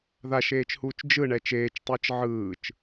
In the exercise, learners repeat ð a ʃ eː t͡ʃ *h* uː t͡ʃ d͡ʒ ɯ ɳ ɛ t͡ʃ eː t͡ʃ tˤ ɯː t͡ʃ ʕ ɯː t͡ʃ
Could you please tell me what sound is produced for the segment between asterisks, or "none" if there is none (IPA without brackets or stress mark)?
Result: h